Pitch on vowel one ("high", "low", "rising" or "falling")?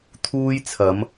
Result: high